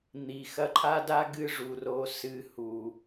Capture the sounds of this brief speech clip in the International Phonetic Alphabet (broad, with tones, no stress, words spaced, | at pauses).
n̪i˨ xɐ˧ǃʰa˦da˦ ɡɨ˦ʐu˨ro˧ sɨ˧hu˨